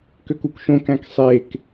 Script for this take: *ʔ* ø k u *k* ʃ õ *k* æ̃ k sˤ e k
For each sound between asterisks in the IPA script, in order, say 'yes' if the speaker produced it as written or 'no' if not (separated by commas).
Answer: no, yes, yes